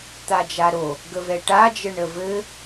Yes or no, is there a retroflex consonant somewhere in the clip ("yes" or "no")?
yes